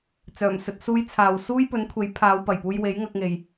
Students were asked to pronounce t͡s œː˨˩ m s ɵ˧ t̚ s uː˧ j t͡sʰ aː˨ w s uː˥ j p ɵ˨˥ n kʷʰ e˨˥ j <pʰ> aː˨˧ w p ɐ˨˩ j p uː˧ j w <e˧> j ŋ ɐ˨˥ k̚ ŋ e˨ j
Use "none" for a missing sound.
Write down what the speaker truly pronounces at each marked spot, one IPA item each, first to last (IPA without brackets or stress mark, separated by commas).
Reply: pʰ, e˨˥